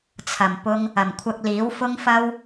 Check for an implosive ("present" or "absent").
absent